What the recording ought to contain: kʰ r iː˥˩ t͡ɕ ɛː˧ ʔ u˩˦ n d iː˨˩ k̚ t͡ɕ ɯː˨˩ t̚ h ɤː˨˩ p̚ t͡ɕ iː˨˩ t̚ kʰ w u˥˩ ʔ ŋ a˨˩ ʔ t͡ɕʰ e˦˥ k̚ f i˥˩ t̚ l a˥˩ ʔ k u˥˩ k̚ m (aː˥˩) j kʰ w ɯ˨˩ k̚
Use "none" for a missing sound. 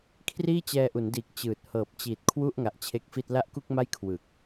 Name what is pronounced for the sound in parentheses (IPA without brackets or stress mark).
a˥˩